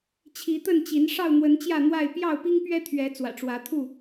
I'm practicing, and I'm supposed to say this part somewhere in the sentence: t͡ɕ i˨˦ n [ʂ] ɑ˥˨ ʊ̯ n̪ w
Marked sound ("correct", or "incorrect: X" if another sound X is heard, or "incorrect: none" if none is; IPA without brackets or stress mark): correct